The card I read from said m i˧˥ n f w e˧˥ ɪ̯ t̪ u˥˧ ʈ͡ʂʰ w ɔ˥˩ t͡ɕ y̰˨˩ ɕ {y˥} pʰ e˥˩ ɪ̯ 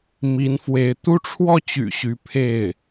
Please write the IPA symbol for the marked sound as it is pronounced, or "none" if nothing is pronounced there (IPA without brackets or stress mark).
y˧˥